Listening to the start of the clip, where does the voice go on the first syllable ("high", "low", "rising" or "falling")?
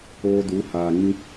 high